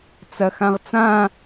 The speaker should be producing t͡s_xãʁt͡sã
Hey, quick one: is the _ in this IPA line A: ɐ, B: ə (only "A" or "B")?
A